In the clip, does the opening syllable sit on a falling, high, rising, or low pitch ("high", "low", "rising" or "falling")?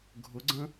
rising